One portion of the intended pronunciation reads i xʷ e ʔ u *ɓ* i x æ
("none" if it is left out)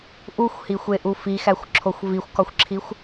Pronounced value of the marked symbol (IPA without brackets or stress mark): f